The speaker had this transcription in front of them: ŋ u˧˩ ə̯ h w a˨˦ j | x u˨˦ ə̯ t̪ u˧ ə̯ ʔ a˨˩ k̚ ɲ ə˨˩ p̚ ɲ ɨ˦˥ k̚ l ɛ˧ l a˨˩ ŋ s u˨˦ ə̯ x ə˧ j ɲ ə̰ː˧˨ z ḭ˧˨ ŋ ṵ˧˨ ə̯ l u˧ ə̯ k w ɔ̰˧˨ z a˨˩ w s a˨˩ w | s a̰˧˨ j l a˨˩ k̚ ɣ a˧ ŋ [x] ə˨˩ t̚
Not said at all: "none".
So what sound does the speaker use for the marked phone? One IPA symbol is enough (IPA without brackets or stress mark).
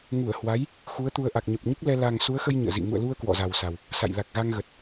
ɣ